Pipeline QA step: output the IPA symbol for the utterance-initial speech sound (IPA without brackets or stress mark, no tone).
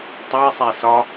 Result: tˤ